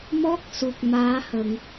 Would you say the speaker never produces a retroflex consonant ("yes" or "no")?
yes